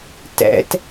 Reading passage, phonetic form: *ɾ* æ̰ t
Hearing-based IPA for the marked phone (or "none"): t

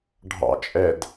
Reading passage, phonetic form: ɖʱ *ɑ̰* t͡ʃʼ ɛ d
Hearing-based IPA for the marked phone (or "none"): ɑ̰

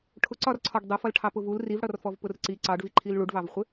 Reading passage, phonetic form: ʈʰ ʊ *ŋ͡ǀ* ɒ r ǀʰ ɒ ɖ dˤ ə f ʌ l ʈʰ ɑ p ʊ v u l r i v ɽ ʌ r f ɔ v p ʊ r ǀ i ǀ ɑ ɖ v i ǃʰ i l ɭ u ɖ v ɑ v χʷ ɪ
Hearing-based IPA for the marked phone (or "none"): ǀ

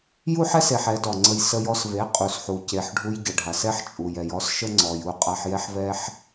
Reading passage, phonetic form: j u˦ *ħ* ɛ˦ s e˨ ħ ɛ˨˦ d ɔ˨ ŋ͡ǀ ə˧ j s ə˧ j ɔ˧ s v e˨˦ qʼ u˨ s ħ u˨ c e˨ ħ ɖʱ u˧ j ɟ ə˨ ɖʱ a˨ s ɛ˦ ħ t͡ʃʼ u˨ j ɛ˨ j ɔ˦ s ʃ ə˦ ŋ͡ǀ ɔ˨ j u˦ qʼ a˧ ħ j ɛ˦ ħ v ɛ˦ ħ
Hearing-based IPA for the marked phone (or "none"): ħ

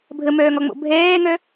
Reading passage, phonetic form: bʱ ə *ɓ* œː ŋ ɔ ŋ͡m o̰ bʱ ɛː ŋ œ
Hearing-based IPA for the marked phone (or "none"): m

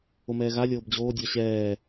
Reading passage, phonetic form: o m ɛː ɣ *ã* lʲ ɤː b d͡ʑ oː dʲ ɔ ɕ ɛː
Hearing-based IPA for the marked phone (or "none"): a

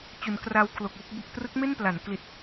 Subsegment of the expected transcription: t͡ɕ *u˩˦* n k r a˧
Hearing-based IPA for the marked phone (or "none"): u˩˦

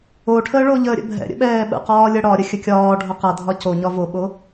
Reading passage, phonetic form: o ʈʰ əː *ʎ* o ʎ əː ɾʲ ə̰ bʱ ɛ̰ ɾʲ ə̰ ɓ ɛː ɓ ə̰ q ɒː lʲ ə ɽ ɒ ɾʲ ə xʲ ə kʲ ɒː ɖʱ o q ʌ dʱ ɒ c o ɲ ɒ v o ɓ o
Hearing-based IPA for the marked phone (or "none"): ɭ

